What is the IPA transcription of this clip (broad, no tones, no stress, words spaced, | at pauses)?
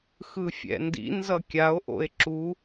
xɯfʲɛ̰ndḭnzʌ kʲao̯ʔo̰e̯ ǁu